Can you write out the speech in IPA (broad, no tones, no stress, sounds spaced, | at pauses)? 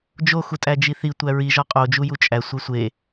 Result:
d͡ʒ o x u tʼ æ d͡ʒ i θ i tʷ æ ɹ i ʒ ɒ qʼ o d͡ʒ u j u t͡ʃʼ æ sʷ e sʷ e